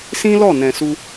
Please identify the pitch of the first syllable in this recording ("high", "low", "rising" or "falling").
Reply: high